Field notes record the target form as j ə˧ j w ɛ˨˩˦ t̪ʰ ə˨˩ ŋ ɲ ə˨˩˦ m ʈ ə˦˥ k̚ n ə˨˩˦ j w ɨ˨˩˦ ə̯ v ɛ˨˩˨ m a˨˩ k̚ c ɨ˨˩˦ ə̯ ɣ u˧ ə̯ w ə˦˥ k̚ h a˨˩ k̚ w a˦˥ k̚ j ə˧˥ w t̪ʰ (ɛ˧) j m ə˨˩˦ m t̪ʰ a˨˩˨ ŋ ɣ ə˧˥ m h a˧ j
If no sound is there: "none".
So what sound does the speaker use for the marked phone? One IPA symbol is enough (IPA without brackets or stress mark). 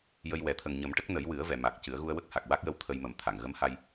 ə˧